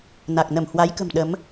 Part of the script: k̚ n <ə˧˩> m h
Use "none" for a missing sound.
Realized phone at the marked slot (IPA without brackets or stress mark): ə˧˩